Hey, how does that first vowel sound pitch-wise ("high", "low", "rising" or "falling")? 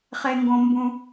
high